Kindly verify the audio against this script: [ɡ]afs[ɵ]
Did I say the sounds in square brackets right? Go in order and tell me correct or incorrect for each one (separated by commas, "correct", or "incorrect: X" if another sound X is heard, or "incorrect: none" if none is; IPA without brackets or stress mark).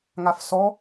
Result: incorrect: ŋ, incorrect: ɔ